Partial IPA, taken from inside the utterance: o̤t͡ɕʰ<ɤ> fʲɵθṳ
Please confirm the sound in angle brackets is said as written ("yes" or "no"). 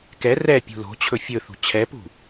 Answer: no